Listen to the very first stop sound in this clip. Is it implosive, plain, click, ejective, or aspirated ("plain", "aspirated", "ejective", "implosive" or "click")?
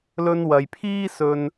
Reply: aspirated